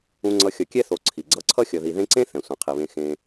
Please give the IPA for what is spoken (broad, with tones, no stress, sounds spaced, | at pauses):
ũ˦ ŋ͡ǀ ʌ˦ xʲ ʌ˨ kʲ ɛ˥ θ o˨ ǀʰ i˩ ɡ͡ǀ ʌ˦ ǀʰ ʌ˥ xʲ ʌ˨ ð i˨ ð ẽ˦ ǀ ẽ˥ θ ɛ̃˩ sʷ ã˩ qʰ i˩ β ẽ˨ x ẽ˨